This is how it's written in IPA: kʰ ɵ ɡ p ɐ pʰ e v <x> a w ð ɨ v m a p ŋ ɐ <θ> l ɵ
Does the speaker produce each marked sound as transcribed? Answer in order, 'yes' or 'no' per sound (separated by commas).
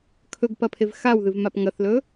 yes, yes